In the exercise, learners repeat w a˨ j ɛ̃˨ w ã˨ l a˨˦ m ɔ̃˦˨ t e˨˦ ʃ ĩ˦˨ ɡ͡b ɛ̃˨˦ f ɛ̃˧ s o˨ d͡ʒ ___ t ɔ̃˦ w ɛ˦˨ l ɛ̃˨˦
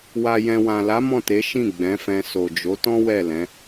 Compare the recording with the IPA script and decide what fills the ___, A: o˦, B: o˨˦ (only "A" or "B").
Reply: B